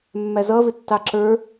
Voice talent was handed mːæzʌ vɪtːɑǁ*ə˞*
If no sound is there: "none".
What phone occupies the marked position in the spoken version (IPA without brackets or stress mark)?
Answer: ə˞